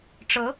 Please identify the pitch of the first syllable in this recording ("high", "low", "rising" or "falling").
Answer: rising